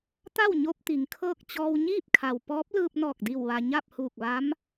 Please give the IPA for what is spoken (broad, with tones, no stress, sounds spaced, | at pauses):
t̪ a˥˨ w ɲ o˧ p̚ t̪ i˩˧ ŋ kʰ ɤː˥˨ k̚ t͡ɕ ɔː˧ w ɲ iː˥˨ p̚ kʰ a˩ w p ɔː˧˥ p̚ l ɯː˧ p̚ n ɔː˧˩ k̚ d i˧˩ w ʋ a˩ ɲ a˥˨ p̚ h uː˧˩ k̚ ʋ a˧˥ m